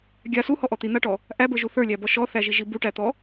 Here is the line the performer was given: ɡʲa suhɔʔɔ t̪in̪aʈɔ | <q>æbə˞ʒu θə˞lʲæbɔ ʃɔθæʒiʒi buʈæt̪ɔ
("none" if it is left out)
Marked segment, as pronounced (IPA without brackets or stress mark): ʔ